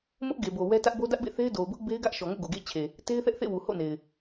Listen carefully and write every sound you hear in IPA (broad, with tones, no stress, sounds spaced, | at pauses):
m ʊ˦ ʔ ɡ e˨ b o˨ w ɛ˦ t ä˦ ʔ b o˦ d ä˦ ʔ b ḛ˦˨ θ e˦ ɪ̯ d o˨ ʊ̯ b ʊ˦ ʔ b e˦ ɪ̯ ɡ ä˦ ʔ ʃ ɔ˨ ŋ o̰˦˨ ɡ o˨ ɡ ḛ˦˨ ɪ̯ t͡ɕʰ e˨ | t e˦ ɪ̯ θ ɛ˦ ʔ θ ḛ˦˨ w u˨ h o̰˦˨ n e˨ ɪ̯